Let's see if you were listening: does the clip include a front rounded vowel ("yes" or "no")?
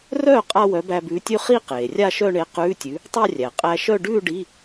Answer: yes